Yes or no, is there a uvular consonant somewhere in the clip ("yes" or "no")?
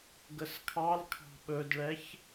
no